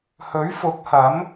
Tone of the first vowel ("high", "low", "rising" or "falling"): rising